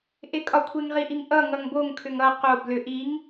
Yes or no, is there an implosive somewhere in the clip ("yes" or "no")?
no